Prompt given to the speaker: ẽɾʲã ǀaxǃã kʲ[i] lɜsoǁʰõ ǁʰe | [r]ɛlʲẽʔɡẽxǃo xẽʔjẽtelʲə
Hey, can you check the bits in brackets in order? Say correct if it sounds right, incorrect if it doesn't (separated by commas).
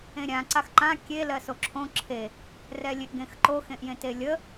incorrect, correct